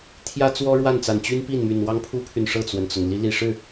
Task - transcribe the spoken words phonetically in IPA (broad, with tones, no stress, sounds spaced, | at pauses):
t̪ʰ j ä˥ t͡s w ɔ˥ ɻ w a˥˩ n t͡s a˨˩ n t͡ɕ y˥ n p i˥˩ n m y˨˩ n w ɑ˥ ŋ pʰ u˥ pʰ y˨ n ʂ ɤ˥˩ t͡s w ə˩ n t͡s ʊ˩ ŋ l i˧˥ l i˨˩ ʂ ɻ̩˥˩